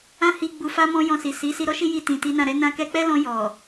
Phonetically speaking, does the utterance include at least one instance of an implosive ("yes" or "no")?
no